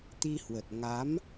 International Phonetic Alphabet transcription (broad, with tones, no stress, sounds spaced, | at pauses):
t̪ i˧ h w ə˨˩ t̚ ŋ a˨˦ m